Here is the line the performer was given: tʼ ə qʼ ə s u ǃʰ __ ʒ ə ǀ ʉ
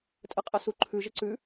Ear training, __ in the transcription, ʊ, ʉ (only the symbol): ʉ